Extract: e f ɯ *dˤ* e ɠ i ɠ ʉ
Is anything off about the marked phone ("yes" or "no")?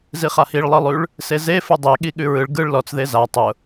no